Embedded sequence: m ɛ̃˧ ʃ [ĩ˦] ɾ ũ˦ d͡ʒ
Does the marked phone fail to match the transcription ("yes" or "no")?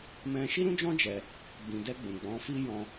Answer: yes